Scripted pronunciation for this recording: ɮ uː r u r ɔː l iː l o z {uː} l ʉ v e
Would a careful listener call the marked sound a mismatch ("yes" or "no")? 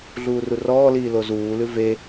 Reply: no